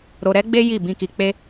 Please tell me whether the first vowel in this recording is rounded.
yes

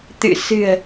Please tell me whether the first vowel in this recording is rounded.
no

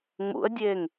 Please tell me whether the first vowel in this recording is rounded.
yes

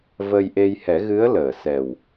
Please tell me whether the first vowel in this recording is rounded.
no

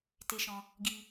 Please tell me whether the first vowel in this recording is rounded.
no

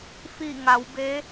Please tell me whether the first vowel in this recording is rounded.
no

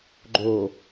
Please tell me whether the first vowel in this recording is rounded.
yes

